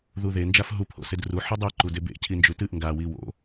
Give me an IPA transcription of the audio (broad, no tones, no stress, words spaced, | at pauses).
ðuðe nd͡ʒafɦu pʰo̰sedru ħɨdˤe ǃudebḛ cʰind͡ʒʉtɨʔ ŋɡa wiwo̰